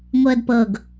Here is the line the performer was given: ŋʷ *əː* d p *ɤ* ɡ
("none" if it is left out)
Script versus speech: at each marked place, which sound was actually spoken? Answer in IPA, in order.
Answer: əː, ɤ

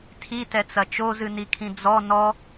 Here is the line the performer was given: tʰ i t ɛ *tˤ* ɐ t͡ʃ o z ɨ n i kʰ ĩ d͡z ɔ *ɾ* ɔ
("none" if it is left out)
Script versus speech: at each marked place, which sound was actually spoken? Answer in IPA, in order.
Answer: t͡s, n

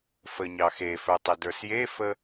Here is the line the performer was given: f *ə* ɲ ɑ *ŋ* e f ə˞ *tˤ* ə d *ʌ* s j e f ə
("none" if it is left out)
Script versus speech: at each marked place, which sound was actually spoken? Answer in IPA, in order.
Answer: ə, x, tˤ, ə˞

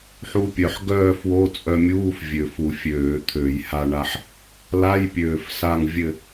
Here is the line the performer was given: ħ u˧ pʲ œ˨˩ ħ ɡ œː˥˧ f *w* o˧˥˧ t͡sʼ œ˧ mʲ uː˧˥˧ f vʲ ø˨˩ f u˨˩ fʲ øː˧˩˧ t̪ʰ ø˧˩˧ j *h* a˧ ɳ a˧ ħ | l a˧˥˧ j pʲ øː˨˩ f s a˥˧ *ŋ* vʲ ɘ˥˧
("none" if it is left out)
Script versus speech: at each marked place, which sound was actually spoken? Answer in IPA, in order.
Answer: w, h, ŋ

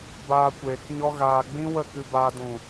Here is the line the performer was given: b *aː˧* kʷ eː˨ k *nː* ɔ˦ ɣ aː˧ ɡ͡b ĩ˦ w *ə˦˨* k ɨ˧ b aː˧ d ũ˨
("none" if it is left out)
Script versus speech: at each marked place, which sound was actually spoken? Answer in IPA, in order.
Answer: aː˧, ɲ, ə˦˨

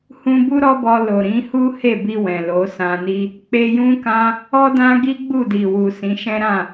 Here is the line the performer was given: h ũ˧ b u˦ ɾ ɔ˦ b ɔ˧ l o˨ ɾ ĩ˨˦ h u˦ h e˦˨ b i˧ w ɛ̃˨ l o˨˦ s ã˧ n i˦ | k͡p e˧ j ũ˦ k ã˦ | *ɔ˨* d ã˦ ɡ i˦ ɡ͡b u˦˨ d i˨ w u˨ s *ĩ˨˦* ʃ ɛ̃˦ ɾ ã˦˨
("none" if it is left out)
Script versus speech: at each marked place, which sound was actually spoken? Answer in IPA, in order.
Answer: ɔ˦, ĩ˨˦

